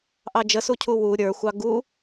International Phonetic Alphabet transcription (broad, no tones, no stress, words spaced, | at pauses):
ʔɑd͡ʒəsucʰu wu ɾʲə˞xʷɑ ɡu